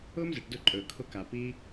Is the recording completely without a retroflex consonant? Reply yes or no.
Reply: no